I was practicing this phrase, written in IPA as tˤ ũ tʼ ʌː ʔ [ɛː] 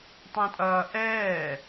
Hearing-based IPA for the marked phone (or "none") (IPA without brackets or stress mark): ɛː